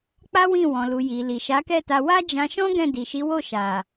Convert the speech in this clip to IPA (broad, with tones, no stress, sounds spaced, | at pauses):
k͡p a˦ w ĩ˦˨ w ɔ̃˨ l u˨ j i˨ l i˨ ʃ a˨˦ k ɛ˦˨ t a˧ w a˦ d͡ʒ ã˧ ʃ ɔ̃˦ ɡ ɛ̃˦˨ d i˨ ʃ i˨˦ w o˦˨ ʃ a˨